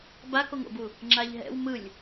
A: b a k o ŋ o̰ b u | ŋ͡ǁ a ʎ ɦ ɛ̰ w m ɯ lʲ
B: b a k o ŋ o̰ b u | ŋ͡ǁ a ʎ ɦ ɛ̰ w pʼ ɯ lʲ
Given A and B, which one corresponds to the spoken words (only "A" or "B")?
A